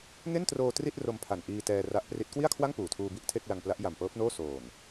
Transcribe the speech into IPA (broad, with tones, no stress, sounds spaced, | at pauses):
ŋ e˥˩ n t r oː˧ t r i˥˩ t̚ r o˧ m pʰ a˨˩ n ʔ iː˧ t ɛː˧ r a˦˥ ʔ p r i˦˥ t̚ k w i˥˩ a̯ kʰ w a˥˩ ŋ p uː˨˩ tʰ uː˧ b i˥˩ ʔ tʰ e˥˩ k̚ l a˧ ŋ p l a˦˥ ʔ j a˨˩ m p ɤː˦˥ p̚ n oː˥˩ s oː˨˩ n